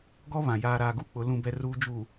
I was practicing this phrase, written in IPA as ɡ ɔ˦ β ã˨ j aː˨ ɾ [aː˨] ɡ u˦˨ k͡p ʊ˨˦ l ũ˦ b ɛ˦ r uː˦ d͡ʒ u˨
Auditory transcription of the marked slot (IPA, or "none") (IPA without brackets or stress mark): aː˨